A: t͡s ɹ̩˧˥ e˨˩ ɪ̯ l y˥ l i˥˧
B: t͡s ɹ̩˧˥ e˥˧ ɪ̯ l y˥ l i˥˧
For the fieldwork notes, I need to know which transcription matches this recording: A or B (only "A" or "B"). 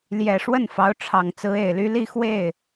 A